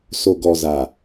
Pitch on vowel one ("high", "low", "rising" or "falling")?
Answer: low